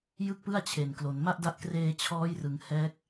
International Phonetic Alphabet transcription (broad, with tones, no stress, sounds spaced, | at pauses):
j ɯ˥˩ k̚ p ɯ˥˩ a̯ t͡ɕʰ e˨˩ n k l o˩˦ n m a˥˩ ʔ d a˦˥ ʔ k r eː˧ t͡ɕʰ ɔː˦˥ j r ɯ˩˦ ŋ h ɛː˦˥ k̚